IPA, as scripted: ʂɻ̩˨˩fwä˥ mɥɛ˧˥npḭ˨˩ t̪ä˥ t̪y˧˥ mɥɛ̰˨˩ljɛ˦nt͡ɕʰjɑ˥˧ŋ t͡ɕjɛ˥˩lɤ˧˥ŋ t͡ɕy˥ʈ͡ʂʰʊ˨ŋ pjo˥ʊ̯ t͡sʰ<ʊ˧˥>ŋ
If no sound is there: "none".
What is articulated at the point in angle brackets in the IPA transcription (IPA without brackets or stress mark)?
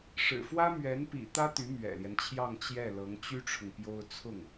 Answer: ʊ˥˩